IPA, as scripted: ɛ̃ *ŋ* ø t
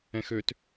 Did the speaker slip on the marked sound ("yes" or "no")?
yes